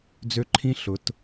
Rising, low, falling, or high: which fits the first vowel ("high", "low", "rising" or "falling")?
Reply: high